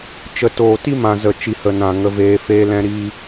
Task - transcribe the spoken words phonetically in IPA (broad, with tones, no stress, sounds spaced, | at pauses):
t͡ʃ ə˨ t oː˨ t i˦ m ã˨ z ə˨ t͡ʃ i˨ h ə˨ n ã˨ ŋ ə˧ v eː˧ f eː˦ l ɛ̃˦ ɾ iː˧